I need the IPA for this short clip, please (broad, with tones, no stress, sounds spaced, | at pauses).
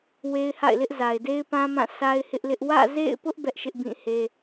w e˦ ɪ̯ h a̰˦˨ ɪ̯ l ɪ˦ ʔ z a˨ ɪ̯ d e˦ ɪ̯ p ã˦ m ã˦˨ s a˦ ɪ̯ h ɪ˦ ʔ l ɪ˦ ʔ w ä̰˦˨ z ḛ˦˨ ɪ̯ p ʊ˦ ʔ b ɛ˦ ʔ ʃ ɪ˦ ʔ b ĩ˦˨ h e˦